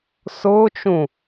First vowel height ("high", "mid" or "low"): high